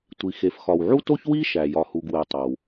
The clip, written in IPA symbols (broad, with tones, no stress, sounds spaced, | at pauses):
tʷ i˩ x e˩ f x ɒ˩ w ʕ u˥ t o˥ ç w i˥ ʃ æ˩ j ɒ˩ h u˩ ɡ w e˩ tˤ o˩ w